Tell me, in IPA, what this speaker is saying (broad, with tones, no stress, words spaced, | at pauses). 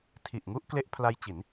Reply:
tʰi˨˩ʔŋu˥˩ʔkle˦˥ʔ pʰla˦˥jt͡ɕi˩˦n